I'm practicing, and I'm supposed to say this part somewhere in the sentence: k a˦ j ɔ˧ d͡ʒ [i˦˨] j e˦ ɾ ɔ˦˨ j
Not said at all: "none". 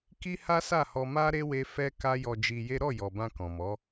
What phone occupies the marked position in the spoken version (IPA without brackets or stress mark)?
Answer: i˧